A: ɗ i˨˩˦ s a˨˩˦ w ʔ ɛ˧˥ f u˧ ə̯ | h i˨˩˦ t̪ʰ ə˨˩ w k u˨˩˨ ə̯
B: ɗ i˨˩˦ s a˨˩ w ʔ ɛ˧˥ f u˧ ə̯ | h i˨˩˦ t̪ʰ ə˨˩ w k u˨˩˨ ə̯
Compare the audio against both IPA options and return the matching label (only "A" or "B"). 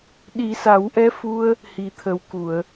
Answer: A